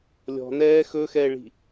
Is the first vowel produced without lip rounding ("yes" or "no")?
no